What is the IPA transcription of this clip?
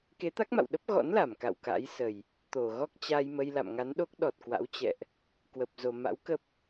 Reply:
k e˨˦ t̪ a˦˥ k̚ m a̰˧˨ w ɗ ə˦˥ p̚ ɣ ɔ̰˧˥ n l a˧˩ m k a̰˧˨ w k a̰˧˥ j s ə˨˩ j | t̪ o˧˩ ɣ ɔ˦˥ k̚ t͡ɕ a˧ j m ə˧ j l a̰˧˨ m ŋ a˨˦ n ɗ o˦˥ k̚ ɗ ɔ˨˩ t̚ k w a̰˧˥ w t͡ɕ ɛ̰˧˨ ʔ | k w ə˨˩ p̚ z o˨˩ m a̰˧˥ w k ə˦˥ p̚

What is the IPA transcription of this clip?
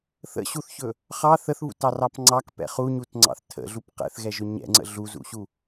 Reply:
θ ə̰ ɕ u θ ç ɵ | χ ɑ θ ə θ β ṵ t ɑ r ɑ p ŋ͡ǀ ɑ k p ɛ̰ χ u ɲ u t ŋ͡ǀ ɑ̰ θ tʰ ə̰ ɮ u p q ɛ̰ θ ɣ ɛ ʒ ɵ ɲ ɛ̰ ŋ͡ǀ ə̰ ɮ u z ṵ ɕ u

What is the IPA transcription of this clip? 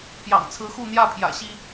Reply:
p j ɑ̰˨˩ ŋ t͡sʰ ɹ̩˨˦ x u˥˨ n̪ j ä˥˨ pʰ j ä̰˨˩ ɕ i˦

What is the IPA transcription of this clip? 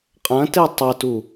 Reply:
qʼ ɐ̃ t e tˤ ɘ t u

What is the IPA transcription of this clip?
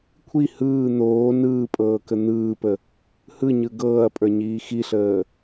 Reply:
kʷʰ i h ɯː n̪ oː n ɯː pʼ ɤː k ə n̪ ɯː p ə | h ɯ ɲ ɯ ɡ ɤː ɐ̯ pʼ ə˞ ɲ iː x i ɬ əː

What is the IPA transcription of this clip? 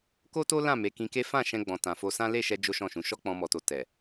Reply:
k o˦ t o˦ l ã˦˨ m e˨˦ k ĩ˧ k e˦ f ã˦˨ ʃ ɛ̃˧ ɡ͡b ɔ̃˨ t ã˨ f o˧ s ã˦ l e˦˨ ʃ ɛ˧ d͡ʒ o˦ ʃ ɔ̃˦˨ ʃ ũ˨˦ ʃ ɔ˦ k͡p ɔ̃˧ m ɔ˨ t o˨ t ɛ˨

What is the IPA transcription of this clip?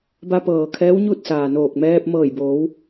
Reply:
b a˧ p ɤː˩ kʰ ɛː˧˥ w ɲ u˥˨ t̚ s aː˩ n oː˧˩ k̚ m ɛː˧ p̚ m ɤː˧˩ j b oː˩˧ w

